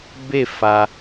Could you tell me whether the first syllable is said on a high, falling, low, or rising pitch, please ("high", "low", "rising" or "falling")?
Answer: falling